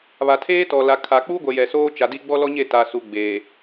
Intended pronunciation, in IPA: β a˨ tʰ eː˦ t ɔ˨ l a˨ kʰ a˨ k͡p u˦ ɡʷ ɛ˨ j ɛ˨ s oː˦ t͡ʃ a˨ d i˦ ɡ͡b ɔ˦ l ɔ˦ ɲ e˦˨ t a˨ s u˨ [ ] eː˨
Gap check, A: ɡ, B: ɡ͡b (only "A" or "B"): B